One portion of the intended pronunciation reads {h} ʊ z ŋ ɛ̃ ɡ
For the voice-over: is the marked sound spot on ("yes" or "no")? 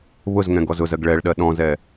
no